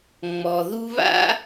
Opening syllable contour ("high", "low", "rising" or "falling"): low